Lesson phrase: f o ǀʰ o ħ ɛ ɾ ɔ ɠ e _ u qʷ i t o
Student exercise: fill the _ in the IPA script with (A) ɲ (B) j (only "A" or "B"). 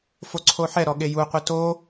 B